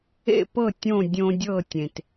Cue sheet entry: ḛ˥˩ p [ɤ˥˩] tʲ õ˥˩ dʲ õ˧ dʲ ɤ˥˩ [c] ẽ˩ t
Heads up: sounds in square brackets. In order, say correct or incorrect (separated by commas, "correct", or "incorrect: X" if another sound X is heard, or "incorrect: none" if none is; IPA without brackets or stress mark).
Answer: correct, incorrect: tʲ